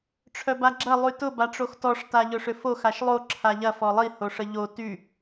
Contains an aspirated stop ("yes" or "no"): yes